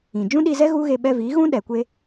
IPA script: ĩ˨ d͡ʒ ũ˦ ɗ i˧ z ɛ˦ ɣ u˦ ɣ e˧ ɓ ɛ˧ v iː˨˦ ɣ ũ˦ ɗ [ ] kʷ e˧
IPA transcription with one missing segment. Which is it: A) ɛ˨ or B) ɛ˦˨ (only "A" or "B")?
A